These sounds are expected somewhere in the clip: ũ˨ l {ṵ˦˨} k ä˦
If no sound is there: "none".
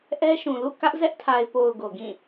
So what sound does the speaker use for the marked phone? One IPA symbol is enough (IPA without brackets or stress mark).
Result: ṵ˦˨